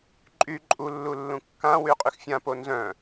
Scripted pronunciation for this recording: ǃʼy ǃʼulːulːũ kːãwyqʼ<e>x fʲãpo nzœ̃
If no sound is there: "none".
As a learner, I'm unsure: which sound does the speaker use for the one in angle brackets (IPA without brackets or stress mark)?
y